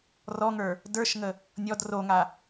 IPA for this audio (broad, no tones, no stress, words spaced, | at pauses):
rɔŋə˞ | də˞ʃŋə | nʲɔd roŋa